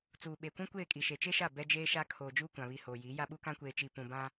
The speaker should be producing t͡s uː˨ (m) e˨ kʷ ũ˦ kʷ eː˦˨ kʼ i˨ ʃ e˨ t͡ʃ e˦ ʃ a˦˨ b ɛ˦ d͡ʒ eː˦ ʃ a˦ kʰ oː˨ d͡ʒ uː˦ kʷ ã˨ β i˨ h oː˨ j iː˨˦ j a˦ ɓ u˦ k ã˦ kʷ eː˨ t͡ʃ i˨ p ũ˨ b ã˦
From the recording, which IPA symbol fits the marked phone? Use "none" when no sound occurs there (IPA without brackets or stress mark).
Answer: ɓ